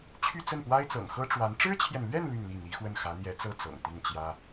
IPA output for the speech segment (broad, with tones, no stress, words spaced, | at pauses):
t͡ɕʰy˥˧t͡sə˥˩npwa˥ɪ̯t͡sɤ̰˨˩ŋ xɤ˥ʈ͡ʂwa˧˥n ʈ͡ʂɻ̩˥t͡ɕʰjɛ˨nlɥɛ˥˧n ly˥˧nli˥˩ n̪i˧˥xwə˥˩n xä˧˥n̪jɛ˧˥t͡sɤ˥ t͡sɤ̰˨˩ŋt̪i˥˩nt͡ɕjä˥